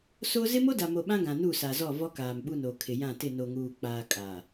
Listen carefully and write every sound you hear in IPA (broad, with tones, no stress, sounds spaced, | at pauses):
s o˦ z ɪ˦ m o˦ d a˨ m o˨ ɓ ã˦ ɡ ã˨ n u˦˨ s a˨ z ɔ˦˨ v ɔ˦ k aː˨ m ɓ u˦˨ n o˨ kʰ ɪ˨ j ã˦˨ t ɪ˦˨ n o˨ ŋ uː˨ k͡p aː˨ kʼ a˨